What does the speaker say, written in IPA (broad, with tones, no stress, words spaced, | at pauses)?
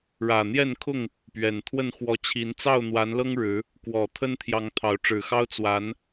ɻä˨˩n̪jɛ˥˨nkʰʊ˥˨ŋ | pɥɛ˨˩nt̪ʰwə˥˨n xwɔ˨˦t͡ɕʰi˨˦n t͡sɑ˥˨ʊ̯n̪wa˨˦nlɤ˦ŋ ɻɻ̩˨˦ | kwɔ˨˩ t̪ʰə˦nt̪ʰjɑ˨˦ŋ t̪ʰɑ˨˦ʊ̯ʈ͡ʂɻ̩˨˩xɑ˦ʊ̯ t͡swa˨˦n